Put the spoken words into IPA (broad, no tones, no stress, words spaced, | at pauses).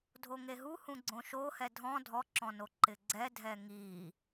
dʱoŋeɦuhũ ɡ͡ǀõʃo hɛdʱɔ̃ dʱɔǁɔ̃noǃɪ ɡ͡ǀɛdʱɛ ŋi